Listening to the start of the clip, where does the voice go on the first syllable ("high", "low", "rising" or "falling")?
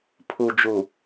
low